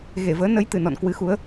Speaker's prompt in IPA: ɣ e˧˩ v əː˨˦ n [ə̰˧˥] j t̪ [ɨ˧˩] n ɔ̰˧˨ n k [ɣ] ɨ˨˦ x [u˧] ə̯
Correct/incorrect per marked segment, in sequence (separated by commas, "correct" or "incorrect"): incorrect, correct, incorrect, incorrect